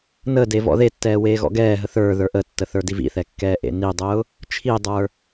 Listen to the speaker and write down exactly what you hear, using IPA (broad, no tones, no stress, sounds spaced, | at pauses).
n əː d e v ɔ̰ ð e tː ɛː w eː ɣ ɔ̰ ɡ ɛː ɦ ə θ ə˞ ð ə˞ ʔ ə tː ə θ ə˞ d i v ḭ θ ɛ kː ɛː ʔ ḛ n i dˤ ʊː | t͡ʃʰ i dˤ ə˞